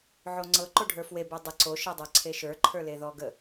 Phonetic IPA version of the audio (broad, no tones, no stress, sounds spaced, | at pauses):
ʕ o ŋ͡ǀ ɤ ǃ o ɖʱ ə˞ f w e b ə˞ dˤ ə ǀ o ʃ ɤ dˤ ə˞ ǀʰ e ʃ ə˞ ǃʰ ə˞ l e ð ɔ ɡ ə